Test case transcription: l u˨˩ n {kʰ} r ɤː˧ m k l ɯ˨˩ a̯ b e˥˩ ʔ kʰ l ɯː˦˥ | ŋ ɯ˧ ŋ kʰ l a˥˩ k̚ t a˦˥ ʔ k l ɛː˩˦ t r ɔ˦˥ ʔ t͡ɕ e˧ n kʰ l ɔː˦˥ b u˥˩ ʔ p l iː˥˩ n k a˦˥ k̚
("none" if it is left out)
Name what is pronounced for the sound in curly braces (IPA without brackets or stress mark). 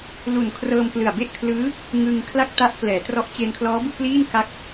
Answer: kʰ